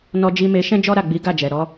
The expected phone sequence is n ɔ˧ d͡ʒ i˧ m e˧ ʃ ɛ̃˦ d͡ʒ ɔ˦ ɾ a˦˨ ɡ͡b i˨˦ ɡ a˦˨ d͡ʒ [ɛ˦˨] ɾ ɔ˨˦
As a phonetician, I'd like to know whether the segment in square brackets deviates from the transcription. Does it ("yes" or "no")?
yes